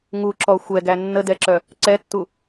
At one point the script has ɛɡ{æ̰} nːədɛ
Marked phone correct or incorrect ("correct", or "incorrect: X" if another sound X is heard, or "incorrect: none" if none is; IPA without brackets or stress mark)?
incorrect: æ